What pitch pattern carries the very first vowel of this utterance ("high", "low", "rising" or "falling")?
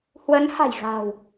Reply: rising